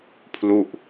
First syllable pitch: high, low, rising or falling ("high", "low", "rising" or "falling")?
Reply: falling